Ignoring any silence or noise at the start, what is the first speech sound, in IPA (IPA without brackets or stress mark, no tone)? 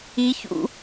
i